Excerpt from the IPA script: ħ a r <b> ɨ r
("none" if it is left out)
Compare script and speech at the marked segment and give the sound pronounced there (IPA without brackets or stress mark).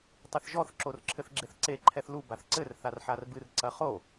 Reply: b